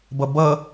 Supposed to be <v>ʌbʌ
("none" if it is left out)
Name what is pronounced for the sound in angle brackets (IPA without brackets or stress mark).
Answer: b